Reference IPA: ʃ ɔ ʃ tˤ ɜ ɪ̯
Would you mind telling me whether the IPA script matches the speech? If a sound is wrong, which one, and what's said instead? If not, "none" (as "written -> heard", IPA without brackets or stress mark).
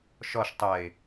none